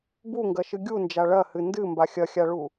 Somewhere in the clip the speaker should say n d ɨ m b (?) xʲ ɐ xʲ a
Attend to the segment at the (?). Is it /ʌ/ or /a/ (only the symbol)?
a